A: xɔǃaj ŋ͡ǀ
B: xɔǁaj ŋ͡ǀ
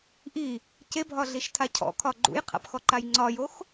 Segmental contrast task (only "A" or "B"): A